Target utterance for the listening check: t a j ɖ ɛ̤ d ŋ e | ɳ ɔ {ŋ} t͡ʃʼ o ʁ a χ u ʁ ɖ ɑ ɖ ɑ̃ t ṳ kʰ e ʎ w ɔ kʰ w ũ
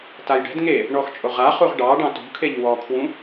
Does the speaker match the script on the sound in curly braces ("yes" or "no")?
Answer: no